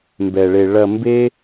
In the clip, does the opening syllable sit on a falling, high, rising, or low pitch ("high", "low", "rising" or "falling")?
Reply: low